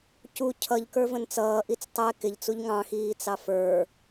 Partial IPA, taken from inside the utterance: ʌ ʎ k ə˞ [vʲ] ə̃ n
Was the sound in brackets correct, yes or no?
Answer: no